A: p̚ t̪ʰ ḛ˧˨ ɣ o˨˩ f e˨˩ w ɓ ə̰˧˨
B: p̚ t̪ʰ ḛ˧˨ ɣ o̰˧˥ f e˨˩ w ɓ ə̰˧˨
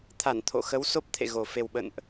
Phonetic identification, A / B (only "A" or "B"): A